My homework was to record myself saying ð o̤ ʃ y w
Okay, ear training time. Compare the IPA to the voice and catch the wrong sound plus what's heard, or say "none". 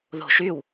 none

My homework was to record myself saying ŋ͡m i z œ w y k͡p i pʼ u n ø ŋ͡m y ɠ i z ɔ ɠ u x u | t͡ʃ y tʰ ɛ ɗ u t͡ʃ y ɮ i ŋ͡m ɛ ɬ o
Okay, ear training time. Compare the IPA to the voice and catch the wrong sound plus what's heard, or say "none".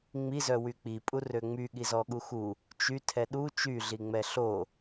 n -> r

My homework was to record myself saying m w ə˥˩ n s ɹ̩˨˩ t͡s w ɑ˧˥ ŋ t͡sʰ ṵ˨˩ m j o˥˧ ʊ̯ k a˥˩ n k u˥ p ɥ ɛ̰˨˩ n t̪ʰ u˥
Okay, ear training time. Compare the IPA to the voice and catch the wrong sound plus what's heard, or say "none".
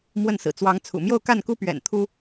none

